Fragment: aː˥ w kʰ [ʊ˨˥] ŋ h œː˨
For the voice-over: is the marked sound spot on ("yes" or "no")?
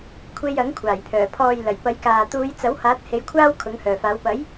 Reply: yes